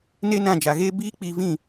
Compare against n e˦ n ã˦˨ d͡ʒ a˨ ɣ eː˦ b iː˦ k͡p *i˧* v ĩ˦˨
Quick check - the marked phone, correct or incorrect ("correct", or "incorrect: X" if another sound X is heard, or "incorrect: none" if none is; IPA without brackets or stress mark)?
correct